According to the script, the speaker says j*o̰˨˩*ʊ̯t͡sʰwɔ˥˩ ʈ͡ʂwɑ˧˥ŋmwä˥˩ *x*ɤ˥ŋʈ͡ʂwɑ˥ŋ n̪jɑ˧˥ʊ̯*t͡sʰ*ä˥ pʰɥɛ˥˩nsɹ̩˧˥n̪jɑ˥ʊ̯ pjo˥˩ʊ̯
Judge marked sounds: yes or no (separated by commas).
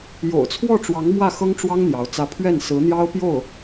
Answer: yes, yes, no